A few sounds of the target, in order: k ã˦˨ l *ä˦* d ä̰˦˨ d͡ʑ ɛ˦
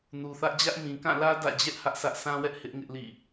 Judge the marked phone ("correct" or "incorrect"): correct